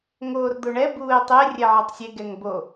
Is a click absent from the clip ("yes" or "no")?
yes